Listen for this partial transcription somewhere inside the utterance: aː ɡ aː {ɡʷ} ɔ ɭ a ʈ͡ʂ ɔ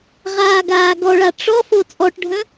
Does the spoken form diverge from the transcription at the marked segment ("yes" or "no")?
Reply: yes